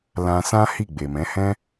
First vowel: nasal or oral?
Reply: nasal